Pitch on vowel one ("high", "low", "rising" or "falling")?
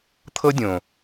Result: high